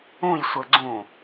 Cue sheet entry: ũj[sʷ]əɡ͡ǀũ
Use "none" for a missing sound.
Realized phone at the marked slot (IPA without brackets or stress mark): sʷ